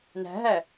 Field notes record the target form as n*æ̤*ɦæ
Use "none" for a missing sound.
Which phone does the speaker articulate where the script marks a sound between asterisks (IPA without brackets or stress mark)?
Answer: æ̤